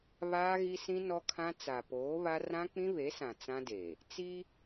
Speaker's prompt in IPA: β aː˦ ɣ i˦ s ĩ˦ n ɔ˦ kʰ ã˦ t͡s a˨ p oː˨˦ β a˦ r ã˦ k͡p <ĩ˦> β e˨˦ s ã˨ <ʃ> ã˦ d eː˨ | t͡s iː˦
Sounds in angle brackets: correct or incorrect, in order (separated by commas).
correct, incorrect